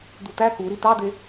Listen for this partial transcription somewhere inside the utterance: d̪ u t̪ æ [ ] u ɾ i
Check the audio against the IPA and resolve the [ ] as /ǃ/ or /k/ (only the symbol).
k